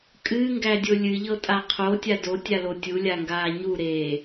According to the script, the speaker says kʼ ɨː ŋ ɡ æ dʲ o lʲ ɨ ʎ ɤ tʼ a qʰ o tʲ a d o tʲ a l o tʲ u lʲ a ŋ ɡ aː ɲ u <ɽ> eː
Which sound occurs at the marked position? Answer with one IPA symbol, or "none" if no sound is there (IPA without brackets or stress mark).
ɾ